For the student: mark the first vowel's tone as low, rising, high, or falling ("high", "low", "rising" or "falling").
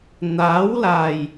rising